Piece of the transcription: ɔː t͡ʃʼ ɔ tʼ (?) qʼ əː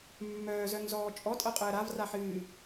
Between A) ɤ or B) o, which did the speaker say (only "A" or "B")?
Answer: A